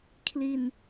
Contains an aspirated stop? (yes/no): yes